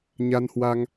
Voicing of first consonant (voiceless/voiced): voiced